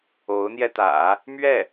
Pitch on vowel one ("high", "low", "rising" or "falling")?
rising